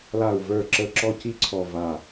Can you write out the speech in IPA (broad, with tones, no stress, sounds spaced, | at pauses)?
l a˧˩ u̯ v ə˞˧˩ ǁ ə˧˩ ǁ ɔ˥ c i˥ ǀʰ ɔ˧˩ v a˧˩